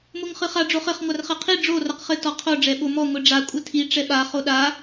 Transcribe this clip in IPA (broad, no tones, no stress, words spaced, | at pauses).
moŋχɨχa ɖ͡ʐoχɘχ ŋʷarχɛqʰi ɖ͡ʐo rɐqχɘ tɔqʰo ɖ͡ʐɛɓomɔ ŋʷiɖ͡ʐa kʷʼɘtʰi ʈ͡ʂɛɓa χoɗa